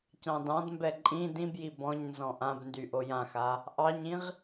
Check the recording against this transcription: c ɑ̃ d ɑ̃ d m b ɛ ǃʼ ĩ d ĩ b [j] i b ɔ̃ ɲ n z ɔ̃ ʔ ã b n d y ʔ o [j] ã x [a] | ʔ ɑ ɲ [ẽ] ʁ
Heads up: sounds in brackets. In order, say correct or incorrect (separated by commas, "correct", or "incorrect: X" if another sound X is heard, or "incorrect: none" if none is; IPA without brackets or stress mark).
correct, correct, correct, incorrect: ĩ